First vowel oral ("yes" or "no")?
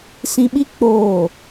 no